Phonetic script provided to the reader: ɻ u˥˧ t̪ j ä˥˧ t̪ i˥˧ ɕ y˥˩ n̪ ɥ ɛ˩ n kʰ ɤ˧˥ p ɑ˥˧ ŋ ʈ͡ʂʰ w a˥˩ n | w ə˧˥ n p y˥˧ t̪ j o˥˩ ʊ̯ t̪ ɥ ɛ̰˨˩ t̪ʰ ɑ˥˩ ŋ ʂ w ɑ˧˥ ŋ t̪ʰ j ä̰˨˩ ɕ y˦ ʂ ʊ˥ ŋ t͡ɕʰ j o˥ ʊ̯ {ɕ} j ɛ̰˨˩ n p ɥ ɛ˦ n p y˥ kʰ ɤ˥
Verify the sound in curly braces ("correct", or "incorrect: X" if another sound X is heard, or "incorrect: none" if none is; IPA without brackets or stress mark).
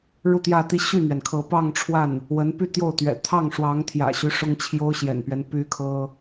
correct